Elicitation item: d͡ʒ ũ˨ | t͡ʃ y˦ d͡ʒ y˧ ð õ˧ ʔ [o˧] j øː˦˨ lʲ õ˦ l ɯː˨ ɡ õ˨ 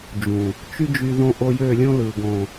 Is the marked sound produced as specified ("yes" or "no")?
yes